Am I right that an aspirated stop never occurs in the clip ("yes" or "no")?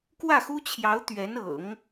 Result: no